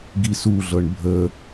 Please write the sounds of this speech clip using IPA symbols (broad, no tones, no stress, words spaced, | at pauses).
ɡisuɮɤɳ bʱə